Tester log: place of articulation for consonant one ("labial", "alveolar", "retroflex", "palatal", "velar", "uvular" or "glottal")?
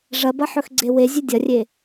retroflex